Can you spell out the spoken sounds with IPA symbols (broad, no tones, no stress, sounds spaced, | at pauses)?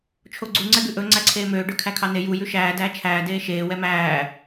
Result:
t͡ʃʰ o ɡ͡ǀ u ŋ͡ǀ ɛ ɡ ʉ ʔ ɵ ŋ͡ǀ æ ǀʰ eː m øː ɖ ø kʰ æ kʰ ɑ n e j u j ʉ ʃ æː d æː t͡ʃʰ æː d eː ʃ eː w ɛ m æː